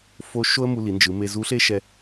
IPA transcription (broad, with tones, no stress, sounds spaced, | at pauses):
f o˧˥ ʃ o˥ ə̯ m u˧ l i˩˧ n d͡ʒ ɯ˩˧ m e˧ z u˧˥ ɬ e˥ ʃ ɛ˧